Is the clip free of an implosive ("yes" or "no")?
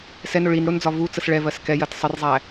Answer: yes